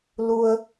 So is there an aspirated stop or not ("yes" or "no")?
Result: no